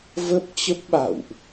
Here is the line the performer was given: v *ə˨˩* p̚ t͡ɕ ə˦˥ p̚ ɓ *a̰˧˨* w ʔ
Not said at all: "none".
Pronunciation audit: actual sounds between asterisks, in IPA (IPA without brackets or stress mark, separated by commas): ə˦˥, a̰˧˨